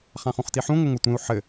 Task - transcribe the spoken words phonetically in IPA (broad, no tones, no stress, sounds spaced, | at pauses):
χ ã χ ũ χ t i ħ ũ ŋʷ ə ŋʷ ʌ tʷ ẽ u̯ ħ ɘ